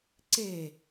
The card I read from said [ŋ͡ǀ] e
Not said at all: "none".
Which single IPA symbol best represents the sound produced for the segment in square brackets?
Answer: ǀ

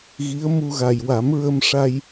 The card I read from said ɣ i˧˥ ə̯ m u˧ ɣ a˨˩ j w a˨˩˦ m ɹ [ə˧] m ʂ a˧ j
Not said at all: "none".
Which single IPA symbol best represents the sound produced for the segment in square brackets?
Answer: ə˧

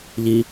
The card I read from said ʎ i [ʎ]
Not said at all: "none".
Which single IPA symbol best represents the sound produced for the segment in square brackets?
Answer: none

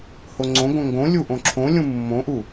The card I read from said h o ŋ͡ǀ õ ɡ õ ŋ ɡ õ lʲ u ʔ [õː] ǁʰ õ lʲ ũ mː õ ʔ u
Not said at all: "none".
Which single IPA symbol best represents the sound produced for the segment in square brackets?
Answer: õ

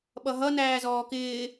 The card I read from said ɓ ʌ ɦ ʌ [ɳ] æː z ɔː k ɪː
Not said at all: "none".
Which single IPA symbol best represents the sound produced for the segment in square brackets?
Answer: n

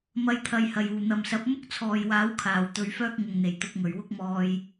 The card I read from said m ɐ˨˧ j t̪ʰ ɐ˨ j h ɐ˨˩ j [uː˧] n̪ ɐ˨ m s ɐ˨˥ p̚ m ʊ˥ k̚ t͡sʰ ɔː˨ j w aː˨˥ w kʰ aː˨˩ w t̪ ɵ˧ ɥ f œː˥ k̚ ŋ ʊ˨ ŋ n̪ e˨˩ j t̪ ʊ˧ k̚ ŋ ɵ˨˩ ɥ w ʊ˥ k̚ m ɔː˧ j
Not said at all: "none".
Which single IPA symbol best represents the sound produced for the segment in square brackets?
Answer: uː˨˩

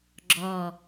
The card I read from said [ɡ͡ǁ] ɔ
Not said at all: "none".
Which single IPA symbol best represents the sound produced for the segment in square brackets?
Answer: ɡ͡ǁ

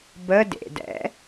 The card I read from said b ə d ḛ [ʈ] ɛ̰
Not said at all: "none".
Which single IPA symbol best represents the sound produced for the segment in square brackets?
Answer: d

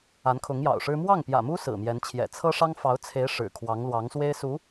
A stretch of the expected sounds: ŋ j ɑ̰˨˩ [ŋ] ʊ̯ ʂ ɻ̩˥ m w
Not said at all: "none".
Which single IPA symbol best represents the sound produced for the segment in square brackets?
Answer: none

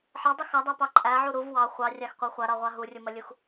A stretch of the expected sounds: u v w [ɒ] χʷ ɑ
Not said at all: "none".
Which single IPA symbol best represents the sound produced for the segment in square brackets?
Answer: ɑ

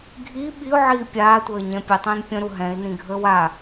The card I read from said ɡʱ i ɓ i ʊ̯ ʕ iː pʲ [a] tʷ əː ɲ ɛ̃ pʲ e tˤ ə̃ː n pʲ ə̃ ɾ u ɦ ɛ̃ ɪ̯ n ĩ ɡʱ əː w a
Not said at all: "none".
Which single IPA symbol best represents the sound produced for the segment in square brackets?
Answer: aː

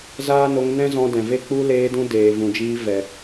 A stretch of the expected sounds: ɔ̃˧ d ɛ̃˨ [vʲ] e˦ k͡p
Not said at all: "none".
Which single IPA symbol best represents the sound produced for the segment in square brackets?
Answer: v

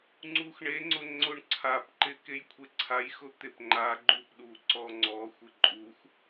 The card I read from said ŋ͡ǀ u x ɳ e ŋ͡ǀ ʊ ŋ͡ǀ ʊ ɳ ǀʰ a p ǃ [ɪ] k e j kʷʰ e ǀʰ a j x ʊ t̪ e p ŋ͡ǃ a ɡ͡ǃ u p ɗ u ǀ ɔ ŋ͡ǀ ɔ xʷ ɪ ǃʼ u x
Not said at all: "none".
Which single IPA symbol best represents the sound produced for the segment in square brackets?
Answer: ɪ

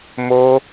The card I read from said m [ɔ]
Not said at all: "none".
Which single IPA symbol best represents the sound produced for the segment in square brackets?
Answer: o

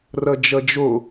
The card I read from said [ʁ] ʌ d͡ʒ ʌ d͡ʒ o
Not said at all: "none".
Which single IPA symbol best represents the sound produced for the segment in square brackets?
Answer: r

